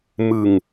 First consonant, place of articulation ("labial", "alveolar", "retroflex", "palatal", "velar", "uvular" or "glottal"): labial